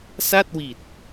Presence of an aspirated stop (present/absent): absent